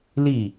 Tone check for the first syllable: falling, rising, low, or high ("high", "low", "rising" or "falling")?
falling